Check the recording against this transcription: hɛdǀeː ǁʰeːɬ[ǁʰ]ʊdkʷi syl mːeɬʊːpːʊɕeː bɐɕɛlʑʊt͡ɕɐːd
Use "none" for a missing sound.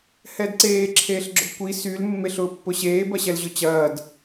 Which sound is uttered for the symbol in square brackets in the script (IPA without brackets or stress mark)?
ɡ͡ǁ